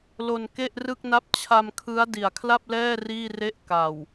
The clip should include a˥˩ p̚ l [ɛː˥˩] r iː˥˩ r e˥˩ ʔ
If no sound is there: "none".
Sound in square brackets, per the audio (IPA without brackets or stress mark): ɛː˥˩